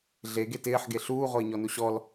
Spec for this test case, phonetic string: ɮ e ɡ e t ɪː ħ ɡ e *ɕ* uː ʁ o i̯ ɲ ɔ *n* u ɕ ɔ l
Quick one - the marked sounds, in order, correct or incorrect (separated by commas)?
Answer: incorrect, correct